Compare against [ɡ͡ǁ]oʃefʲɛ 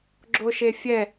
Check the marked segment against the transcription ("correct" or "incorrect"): correct